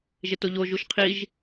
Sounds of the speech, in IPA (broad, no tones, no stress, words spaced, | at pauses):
ʒetoʎo ʒuʃqʰiʒ